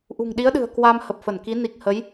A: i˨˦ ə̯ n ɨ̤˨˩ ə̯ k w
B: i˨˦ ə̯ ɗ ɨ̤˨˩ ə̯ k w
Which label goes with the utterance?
B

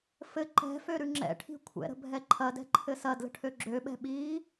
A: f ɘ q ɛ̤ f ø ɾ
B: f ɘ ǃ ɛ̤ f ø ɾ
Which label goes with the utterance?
B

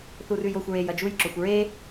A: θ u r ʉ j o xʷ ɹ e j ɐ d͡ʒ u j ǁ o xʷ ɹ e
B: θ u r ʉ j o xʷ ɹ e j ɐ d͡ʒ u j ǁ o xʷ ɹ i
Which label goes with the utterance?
A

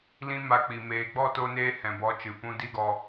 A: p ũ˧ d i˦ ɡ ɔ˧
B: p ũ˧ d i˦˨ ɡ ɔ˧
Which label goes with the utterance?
A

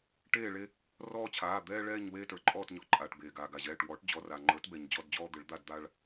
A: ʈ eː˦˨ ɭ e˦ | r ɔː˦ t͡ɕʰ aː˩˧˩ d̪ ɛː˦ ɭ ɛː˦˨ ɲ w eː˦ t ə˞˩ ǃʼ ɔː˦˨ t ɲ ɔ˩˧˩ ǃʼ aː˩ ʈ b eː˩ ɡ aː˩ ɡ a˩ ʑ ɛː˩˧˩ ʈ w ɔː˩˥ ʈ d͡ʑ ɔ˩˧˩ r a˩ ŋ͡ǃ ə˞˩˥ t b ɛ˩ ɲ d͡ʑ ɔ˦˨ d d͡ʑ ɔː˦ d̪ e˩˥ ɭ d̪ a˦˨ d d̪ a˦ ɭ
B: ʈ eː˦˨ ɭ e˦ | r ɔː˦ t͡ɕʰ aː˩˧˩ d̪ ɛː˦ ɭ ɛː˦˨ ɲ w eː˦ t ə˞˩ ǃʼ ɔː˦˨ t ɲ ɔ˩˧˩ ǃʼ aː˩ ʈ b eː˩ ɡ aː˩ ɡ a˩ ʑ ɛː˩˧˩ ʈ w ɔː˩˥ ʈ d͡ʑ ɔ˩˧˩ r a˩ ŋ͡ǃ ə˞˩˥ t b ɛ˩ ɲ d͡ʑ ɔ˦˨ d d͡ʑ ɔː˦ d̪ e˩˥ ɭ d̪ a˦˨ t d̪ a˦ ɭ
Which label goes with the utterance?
A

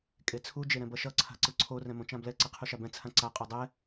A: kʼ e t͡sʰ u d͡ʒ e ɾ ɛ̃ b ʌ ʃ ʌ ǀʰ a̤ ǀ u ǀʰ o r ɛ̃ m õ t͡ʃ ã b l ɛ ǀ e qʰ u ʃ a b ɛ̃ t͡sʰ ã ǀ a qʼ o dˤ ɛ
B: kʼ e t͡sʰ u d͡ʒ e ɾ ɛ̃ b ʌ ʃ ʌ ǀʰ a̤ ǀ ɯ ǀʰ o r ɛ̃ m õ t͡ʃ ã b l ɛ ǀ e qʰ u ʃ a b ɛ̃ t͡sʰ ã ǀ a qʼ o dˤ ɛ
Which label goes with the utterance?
B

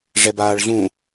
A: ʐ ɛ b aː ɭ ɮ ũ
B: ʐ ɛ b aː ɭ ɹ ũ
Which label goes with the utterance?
A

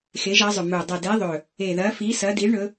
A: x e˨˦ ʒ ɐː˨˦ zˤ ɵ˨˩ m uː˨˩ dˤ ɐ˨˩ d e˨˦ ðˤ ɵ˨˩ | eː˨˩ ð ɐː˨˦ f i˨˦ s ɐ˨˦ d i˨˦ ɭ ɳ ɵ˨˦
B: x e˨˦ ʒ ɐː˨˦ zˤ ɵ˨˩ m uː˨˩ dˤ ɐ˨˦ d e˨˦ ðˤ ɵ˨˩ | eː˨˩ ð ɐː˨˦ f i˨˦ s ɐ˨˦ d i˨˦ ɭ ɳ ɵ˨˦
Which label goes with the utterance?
A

